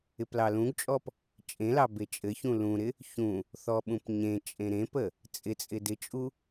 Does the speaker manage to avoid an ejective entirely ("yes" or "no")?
no